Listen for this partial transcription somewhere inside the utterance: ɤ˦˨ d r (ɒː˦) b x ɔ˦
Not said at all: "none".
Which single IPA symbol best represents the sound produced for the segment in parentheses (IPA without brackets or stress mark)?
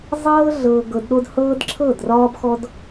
ɒː˦